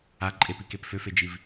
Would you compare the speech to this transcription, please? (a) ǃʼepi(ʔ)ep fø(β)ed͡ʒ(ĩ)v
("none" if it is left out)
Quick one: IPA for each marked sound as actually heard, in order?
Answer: a, k, f, i

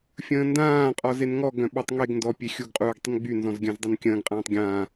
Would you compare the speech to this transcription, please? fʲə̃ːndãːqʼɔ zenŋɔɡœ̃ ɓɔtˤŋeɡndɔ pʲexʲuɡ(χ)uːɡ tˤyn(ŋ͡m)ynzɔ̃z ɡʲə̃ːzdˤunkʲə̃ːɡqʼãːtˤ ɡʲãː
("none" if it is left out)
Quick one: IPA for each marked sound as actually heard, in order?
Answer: qʼ, ɡ͡b

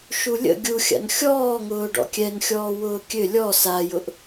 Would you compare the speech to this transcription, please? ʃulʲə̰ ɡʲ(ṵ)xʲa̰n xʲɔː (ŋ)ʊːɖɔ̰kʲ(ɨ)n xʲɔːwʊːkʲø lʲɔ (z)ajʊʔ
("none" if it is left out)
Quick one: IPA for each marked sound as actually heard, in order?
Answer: u, ŋ, ɛ, s

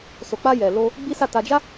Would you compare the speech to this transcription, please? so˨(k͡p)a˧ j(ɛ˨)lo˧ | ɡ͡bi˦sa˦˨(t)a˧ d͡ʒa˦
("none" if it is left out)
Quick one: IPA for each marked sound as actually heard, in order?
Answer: k͡p, ɛ˨, t

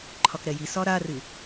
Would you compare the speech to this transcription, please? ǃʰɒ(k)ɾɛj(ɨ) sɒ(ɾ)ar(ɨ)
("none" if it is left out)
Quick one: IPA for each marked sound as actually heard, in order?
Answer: k, i, ɾ, ɨ

